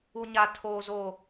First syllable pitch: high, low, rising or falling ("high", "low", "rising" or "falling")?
high